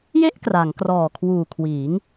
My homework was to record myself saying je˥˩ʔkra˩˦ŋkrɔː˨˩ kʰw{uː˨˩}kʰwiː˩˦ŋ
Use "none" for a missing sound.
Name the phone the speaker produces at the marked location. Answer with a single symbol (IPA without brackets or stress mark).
uː˨˩